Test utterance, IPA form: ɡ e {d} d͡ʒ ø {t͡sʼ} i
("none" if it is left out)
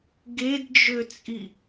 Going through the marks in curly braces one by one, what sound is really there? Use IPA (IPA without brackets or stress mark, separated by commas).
d, t͡sʼ